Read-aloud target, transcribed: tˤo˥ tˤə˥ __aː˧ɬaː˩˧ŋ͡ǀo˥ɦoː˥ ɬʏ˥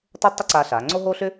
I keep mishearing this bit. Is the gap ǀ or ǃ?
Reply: ǀ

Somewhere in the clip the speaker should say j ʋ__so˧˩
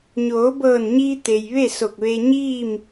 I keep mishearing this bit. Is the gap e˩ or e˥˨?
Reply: e˥˨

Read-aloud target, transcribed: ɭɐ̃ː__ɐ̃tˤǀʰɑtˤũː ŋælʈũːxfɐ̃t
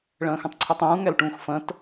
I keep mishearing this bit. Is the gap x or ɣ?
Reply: x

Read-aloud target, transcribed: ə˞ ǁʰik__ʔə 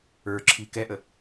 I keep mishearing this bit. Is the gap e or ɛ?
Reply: ɛ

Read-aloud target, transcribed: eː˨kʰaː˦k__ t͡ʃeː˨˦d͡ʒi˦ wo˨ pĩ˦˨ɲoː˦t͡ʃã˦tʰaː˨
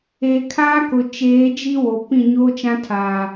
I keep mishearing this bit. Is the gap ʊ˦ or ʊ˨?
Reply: ʊ˨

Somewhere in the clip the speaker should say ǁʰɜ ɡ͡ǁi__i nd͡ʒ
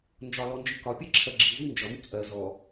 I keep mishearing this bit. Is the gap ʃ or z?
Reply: z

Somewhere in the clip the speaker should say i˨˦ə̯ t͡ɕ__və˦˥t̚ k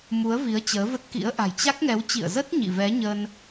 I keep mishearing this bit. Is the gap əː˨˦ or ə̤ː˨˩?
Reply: əː˨˦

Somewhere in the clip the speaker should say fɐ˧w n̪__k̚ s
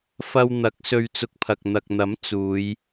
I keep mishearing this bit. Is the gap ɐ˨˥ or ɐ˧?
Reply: ɐ˨˥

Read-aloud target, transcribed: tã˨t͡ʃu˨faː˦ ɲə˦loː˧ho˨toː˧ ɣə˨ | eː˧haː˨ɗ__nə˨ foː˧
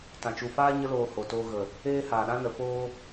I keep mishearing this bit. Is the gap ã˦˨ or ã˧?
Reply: ã˧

